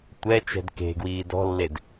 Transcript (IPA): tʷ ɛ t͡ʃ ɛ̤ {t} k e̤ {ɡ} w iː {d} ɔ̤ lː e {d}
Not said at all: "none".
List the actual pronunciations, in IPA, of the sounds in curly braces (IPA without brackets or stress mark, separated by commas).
d, ɡ, d, d